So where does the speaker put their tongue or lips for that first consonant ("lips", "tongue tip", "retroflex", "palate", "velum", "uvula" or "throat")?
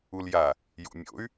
tongue tip